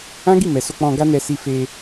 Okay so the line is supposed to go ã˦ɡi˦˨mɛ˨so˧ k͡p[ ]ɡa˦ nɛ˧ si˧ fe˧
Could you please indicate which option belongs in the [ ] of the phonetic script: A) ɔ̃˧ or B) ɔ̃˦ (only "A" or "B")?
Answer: A